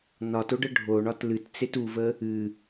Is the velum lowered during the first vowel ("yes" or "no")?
no